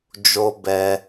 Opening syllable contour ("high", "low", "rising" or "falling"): high